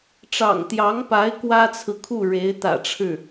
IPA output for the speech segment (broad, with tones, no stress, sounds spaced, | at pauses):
ʈ͡ʂ ɑ̰˨˩ ŋ t̪ j ɑ˧˥ ŋ p a˧˥ ɪ̯ k w ä˥ t͡sʰ ɹ̩˨ kʰ u˥˩ ɻ e˧˥ ɪ̯ t̪ ä̰˨˩ ʈ͡ʂʰ ɻ̩˥˩